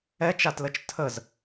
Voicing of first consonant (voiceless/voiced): voiceless